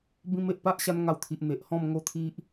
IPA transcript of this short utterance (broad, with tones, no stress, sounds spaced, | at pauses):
b ĩ˧ m e˨ ʔ p a˦ ʔ ɕ a˧ n ŋ a˧ w t̪ʰ i˨ ʔ n̪ e˨ ʔ h ɔ̃˥˧ m ŋ o˦ t̪ʰ i˦ ʔ